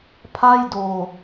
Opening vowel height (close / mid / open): open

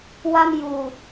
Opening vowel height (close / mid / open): open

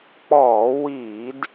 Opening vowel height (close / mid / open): mid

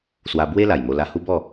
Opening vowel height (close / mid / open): open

